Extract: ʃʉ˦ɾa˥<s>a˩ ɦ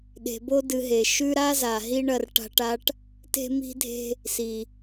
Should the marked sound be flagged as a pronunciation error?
yes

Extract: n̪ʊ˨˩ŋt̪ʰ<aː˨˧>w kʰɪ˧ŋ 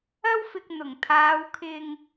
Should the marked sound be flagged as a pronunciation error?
no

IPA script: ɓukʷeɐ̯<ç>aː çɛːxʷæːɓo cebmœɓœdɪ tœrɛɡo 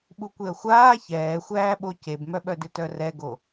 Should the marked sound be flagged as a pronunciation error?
yes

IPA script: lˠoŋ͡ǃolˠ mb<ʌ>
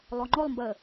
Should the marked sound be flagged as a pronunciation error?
yes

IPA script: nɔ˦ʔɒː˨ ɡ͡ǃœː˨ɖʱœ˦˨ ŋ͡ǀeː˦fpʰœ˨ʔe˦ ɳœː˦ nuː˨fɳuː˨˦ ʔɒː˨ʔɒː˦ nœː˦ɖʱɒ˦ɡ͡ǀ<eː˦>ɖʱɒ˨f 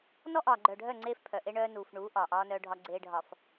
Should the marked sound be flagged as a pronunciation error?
no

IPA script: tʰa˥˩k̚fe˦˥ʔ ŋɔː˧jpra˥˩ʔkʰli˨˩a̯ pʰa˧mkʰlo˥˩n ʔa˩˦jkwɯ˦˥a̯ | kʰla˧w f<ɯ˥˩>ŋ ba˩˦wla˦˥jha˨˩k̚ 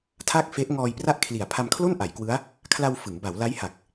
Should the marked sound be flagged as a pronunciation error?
yes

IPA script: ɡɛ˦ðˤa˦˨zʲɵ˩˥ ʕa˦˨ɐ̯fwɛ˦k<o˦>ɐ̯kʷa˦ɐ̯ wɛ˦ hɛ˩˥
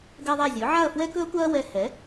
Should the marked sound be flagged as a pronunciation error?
yes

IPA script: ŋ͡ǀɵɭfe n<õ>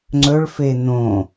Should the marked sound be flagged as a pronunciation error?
no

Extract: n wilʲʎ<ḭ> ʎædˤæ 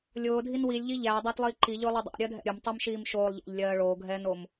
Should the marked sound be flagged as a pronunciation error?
yes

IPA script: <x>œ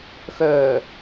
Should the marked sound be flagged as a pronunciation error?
no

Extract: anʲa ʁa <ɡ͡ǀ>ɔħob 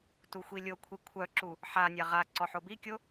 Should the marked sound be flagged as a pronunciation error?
yes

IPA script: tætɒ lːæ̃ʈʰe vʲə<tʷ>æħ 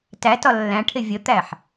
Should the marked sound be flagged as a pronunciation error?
yes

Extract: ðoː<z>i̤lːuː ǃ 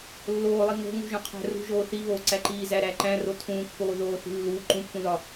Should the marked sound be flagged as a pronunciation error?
yes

